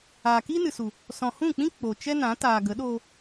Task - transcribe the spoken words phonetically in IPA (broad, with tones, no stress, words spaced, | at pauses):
aː˨kiː˦nɨ˨su˨ | sɔ̃˨hũ˦˨k͡pĩ˦ k͡po˨t͡ʃɛ˦nã˨˦ taː˨ɡə˨˦ ɗo˧